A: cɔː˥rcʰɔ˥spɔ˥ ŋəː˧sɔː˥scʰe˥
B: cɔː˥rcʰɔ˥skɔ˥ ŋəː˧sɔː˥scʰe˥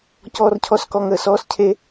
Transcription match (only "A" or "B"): B